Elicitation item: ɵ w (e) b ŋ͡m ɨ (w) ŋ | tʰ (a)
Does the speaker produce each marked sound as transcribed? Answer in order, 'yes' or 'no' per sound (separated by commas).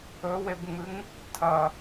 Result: yes, no, no